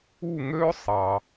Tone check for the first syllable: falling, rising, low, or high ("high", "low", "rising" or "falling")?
falling